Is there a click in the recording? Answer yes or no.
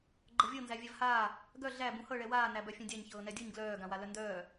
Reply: yes